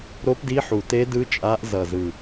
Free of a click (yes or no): yes